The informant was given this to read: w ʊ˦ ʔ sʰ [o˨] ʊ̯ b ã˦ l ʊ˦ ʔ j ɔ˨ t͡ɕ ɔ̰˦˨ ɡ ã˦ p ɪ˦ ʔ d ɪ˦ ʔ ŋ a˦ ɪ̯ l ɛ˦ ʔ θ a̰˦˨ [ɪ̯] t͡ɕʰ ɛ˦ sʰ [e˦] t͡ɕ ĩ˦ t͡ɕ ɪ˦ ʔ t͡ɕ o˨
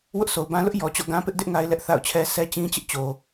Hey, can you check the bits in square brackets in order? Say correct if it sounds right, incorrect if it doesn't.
correct, incorrect, incorrect

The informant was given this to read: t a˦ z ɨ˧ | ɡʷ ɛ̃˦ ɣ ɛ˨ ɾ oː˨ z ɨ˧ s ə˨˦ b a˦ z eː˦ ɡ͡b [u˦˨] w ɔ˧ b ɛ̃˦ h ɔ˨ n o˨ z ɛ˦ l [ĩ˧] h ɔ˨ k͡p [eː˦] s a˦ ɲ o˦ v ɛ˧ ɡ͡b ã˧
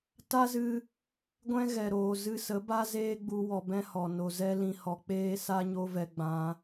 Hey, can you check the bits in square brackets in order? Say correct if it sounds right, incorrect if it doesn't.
incorrect, correct, correct

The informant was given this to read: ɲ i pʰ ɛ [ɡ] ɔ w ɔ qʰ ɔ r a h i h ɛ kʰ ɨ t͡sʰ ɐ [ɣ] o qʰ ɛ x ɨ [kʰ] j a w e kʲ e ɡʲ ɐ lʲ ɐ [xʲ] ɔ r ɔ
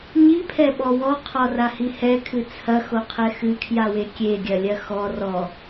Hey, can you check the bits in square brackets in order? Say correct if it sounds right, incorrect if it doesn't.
incorrect, incorrect, correct, incorrect

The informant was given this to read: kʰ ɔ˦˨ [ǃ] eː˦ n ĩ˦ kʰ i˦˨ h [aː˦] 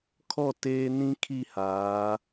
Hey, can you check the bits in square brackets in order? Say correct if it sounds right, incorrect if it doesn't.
incorrect, incorrect

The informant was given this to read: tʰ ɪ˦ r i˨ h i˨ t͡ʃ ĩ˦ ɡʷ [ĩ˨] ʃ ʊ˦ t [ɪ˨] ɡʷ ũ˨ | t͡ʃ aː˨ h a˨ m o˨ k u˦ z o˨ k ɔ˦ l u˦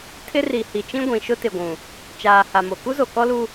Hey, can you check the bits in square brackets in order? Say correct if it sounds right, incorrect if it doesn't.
correct, correct

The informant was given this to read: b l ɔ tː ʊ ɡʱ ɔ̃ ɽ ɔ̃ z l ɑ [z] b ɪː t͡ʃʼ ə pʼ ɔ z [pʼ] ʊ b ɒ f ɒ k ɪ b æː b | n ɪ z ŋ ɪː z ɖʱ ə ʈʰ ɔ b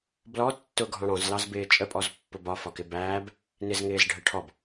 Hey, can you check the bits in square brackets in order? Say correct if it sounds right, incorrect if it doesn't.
correct, incorrect

